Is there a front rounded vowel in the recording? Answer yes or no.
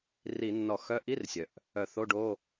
yes